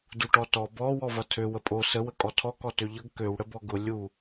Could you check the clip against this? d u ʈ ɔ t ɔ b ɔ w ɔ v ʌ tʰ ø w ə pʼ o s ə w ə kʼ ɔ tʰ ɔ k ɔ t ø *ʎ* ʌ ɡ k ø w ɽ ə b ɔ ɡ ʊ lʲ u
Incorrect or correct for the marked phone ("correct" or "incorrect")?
correct